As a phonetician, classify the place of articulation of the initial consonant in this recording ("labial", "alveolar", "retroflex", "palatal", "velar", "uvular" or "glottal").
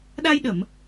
alveolar